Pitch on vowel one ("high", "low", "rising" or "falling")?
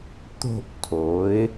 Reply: falling